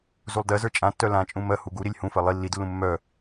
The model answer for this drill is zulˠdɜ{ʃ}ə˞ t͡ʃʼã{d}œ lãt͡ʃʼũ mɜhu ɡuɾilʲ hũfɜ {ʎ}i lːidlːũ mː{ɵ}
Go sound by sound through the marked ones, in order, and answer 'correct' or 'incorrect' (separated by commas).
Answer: incorrect, incorrect, incorrect, incorrect